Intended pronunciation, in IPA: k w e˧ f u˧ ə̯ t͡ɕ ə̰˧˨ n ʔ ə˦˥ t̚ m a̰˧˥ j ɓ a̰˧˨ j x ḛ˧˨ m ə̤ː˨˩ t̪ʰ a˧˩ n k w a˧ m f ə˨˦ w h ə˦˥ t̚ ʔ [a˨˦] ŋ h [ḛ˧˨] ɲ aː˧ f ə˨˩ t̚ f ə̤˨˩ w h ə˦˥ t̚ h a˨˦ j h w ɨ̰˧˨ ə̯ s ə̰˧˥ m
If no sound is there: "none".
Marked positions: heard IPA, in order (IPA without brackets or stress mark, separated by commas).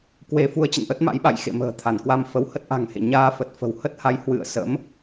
a̤˨˩, ḛ˧˨